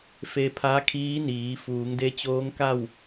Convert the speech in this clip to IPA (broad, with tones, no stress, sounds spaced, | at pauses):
f e˧ pʰ a˧˥ kʰ iː˧˥ n iː˩˧ f uː˩˧ ŋ d e˧˥ t͡ɕ oː˧˥ ŋ k a˥˨ w